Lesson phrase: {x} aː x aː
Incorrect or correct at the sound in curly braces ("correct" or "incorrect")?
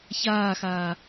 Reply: incorrect